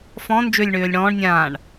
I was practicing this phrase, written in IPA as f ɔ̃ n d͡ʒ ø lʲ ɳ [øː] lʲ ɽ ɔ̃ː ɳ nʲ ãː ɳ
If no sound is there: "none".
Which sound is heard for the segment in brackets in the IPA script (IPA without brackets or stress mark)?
øː